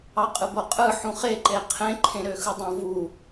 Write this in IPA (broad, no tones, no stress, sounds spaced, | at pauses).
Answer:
ɑ qʼ ɯ b o qʼ ɯ ħ ũ χ e ǃ e qʰ ẽ ǃʰ ẽ ɾ ø x ɯ dˤ õ v u